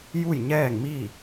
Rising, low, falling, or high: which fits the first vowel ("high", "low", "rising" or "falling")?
falling